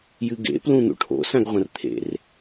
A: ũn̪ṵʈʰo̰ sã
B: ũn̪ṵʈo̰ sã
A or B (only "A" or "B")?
A